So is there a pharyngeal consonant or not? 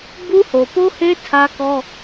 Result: no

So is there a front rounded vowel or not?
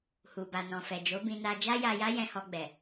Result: no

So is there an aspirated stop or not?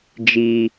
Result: no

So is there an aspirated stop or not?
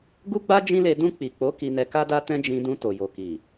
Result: no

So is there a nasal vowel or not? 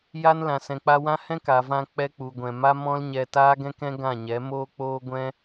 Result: yes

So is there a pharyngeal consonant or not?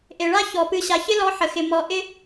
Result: yes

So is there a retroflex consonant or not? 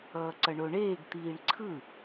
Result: yes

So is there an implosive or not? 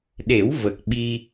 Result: yes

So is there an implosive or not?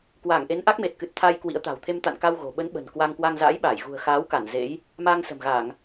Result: yes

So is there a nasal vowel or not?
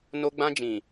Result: yes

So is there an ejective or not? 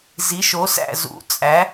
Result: yes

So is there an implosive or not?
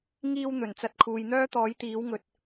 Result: no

